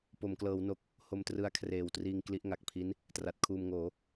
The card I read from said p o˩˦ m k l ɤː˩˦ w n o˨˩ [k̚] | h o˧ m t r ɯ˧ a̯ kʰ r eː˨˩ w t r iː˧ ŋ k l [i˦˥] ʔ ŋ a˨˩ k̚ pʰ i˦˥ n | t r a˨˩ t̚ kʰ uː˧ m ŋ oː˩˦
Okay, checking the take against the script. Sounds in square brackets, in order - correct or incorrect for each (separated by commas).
correct, correct